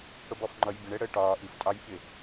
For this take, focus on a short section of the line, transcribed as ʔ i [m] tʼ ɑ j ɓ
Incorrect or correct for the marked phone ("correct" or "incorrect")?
incorrect